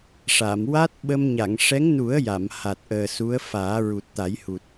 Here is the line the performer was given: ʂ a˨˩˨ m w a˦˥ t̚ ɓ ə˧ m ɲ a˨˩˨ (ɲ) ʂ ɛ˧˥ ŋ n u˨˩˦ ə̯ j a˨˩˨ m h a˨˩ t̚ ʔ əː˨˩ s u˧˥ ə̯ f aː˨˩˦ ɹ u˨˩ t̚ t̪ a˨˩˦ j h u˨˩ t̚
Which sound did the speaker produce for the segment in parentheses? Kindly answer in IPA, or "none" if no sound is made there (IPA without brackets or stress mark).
ŋ